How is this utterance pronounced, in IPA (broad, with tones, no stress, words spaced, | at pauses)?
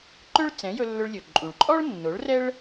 ǃɵ˥ɭ t͡sɛ̃˩˥jɵ˧lːɵ˧ɭlʲɵ˩ ǃʼũ˩ɭǃʼɔ˥ɭ nːo˩˥ɭrɛ˥ɭ